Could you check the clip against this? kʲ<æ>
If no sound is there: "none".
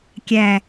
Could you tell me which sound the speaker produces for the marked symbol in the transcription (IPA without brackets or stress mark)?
æ